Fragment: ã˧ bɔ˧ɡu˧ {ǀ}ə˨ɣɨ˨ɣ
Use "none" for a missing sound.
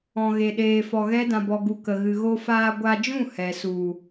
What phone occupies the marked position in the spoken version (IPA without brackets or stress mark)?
k